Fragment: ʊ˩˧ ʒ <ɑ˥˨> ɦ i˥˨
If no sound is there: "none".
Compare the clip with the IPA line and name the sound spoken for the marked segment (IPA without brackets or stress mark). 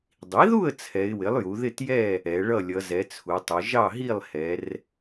ɑ˥˨